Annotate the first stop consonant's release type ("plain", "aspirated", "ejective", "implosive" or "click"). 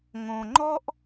click